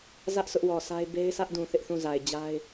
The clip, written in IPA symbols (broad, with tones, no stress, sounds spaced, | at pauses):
z ä˦ ʔ s ʊ˦ ʔ w ɔ˨ sʰ a˦ ɪ̯ b e˦ ɪ̯ s ä˦ ʔ d ũ˨ θ ɪ˦ ʔ θ ũ˦˨ z a˨ ɪ̯ d͡ʑ a˦ ɪ̯